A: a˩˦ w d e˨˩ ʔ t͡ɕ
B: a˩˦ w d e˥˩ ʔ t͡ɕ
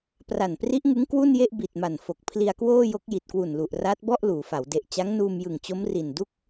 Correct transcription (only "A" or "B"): A